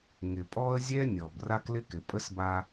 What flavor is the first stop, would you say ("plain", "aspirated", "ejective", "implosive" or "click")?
ejective